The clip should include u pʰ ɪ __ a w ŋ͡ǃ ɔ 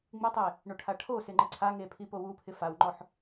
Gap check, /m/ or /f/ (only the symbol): f